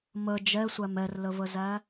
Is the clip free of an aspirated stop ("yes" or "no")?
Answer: yes